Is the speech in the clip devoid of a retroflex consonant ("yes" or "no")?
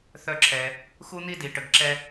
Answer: no